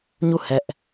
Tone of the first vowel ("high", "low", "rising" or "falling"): falling